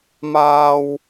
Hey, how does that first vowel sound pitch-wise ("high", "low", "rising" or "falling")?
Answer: high